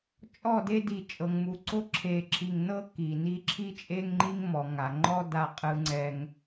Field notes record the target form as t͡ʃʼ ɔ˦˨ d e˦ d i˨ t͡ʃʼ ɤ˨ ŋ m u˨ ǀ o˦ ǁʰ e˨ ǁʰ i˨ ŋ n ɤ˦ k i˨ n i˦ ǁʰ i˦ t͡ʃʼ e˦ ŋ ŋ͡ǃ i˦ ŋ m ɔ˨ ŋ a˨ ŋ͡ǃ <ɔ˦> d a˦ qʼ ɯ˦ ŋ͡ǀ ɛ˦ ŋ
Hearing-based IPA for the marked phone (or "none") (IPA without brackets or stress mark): ɔ˦